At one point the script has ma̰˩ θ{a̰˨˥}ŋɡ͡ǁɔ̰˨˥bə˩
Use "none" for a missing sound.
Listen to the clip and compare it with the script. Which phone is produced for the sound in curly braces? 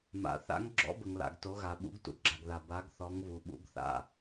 a̰˨˥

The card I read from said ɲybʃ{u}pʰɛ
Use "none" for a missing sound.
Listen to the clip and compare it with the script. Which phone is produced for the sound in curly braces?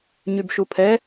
u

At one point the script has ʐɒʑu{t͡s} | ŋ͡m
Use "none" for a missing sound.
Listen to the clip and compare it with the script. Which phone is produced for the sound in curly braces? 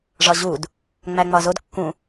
d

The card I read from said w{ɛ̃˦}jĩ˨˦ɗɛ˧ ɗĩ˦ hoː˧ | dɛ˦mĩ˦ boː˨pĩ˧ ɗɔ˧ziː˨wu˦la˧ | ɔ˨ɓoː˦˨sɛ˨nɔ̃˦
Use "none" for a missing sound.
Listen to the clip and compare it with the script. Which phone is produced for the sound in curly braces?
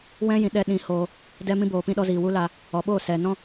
ɛ̃˦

